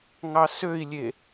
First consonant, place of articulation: velar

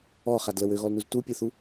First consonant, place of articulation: uvular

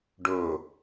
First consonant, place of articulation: retroflex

